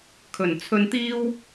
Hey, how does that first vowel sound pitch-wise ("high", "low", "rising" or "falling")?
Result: low